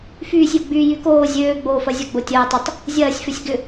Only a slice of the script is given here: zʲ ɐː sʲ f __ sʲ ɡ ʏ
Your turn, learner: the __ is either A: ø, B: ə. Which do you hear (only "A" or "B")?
A